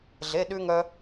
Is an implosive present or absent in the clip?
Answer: present